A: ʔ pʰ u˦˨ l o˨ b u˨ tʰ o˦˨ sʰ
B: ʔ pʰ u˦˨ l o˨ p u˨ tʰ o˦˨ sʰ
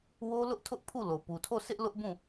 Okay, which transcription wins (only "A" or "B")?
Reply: B